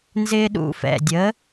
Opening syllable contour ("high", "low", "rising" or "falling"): high